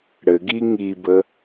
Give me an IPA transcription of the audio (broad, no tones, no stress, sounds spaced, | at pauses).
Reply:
ɽ ɘ ɡ i ŋ i b ə